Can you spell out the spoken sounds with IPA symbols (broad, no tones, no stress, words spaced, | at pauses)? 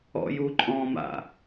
ɔ̰juǃʼɔ̃ma̰